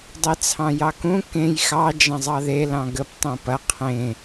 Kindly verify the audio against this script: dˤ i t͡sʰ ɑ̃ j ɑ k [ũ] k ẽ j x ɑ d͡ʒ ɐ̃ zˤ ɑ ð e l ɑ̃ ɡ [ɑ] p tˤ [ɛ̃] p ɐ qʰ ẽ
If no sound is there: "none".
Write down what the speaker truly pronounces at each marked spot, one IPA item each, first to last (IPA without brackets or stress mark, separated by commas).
ũ, ə, ẽ